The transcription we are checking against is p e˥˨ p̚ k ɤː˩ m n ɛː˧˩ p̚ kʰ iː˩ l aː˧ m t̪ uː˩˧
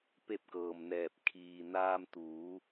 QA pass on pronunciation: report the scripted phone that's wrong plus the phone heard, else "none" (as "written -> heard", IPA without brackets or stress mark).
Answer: l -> n